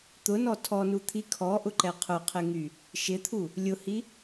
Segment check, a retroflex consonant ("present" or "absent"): absent